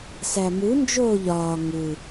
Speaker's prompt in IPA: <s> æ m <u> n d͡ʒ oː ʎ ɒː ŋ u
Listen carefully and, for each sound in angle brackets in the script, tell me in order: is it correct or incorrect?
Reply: correct, correct

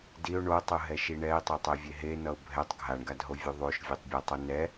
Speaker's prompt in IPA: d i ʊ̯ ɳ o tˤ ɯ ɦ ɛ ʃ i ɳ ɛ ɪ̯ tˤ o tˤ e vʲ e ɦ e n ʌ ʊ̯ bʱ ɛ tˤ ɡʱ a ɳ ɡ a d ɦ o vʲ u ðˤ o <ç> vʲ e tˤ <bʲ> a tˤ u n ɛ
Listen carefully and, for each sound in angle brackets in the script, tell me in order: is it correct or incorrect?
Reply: incorrect: ʃ, correct

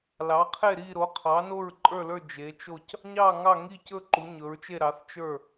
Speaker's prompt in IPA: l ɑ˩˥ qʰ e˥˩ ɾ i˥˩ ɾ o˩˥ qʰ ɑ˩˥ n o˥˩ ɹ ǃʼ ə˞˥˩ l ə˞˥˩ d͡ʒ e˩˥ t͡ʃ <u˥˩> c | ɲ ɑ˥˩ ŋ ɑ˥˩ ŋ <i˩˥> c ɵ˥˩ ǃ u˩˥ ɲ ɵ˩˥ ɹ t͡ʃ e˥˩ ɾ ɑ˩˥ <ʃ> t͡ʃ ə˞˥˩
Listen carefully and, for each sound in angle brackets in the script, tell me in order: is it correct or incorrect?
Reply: incorrect: o˥˩, incorrect: i˥˩, incorrect: θ

